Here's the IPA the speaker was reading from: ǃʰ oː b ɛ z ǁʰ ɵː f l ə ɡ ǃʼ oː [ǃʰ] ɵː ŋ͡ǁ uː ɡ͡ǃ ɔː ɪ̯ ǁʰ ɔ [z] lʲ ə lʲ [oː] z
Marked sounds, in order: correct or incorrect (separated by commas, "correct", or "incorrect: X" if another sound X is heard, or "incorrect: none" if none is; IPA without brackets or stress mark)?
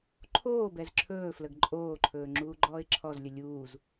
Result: correct, correct, incorrect: uː